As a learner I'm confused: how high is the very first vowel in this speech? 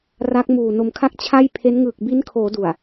low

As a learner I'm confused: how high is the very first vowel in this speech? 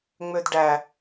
mid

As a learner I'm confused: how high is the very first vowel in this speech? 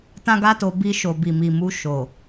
low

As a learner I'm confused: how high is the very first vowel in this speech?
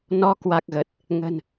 mid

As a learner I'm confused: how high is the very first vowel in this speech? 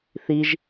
high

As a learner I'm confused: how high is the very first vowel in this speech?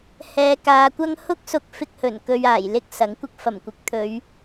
mid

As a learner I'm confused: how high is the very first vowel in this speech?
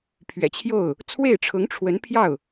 mid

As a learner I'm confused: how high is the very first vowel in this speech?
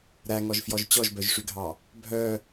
low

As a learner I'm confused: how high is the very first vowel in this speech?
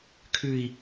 high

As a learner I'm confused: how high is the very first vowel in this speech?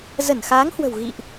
mid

